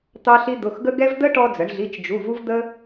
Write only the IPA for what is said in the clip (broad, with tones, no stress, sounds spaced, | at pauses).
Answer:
t̪ ɑ˥ ɬ i˥ d̪ ʊ˧˥˧ x ɡ ə˥ ɡ ɛ˥ v d̪ ə˥ ʈ ɔ˥ d͡z ə˨˥ ɳ ɮ i˧˥˧ t͡ʃ d͡ʒ u˧˥˧ v u˥ v d̪ ə˥